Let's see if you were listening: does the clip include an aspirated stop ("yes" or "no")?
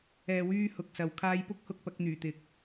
yes